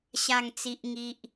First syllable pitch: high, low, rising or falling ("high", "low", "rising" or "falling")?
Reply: falling